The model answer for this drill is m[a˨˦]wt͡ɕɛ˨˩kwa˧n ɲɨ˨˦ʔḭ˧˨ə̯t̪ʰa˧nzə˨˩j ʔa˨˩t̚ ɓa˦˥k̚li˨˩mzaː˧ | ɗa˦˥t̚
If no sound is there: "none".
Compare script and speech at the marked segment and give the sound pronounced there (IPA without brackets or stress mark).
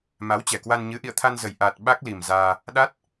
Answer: a˨˦